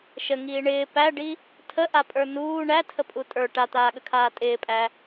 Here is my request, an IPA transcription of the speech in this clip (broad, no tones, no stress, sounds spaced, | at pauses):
ʃ ə ŋ iː ɳ ɪː p æ ɖ i | tʰ ə ʔ a pʼ ə˞ n uː ɳ æ tʰ ə pʼ u tʼ ə˞ ʈ a t̪ aː ɠ ə kʰ aː tʼ ɪː pʼ æ